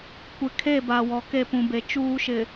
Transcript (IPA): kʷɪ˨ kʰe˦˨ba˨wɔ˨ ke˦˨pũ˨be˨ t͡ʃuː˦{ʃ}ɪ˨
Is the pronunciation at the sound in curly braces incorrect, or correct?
correct